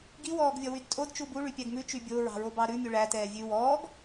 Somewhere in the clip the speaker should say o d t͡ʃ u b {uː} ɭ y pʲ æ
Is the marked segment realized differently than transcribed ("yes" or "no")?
yes